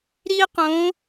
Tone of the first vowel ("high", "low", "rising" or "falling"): high